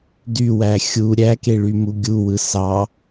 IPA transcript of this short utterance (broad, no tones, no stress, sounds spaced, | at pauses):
d y w æ xʲ u ɾʲ æ k e ɭ y m u ɡʲ u w ɯ s ɑ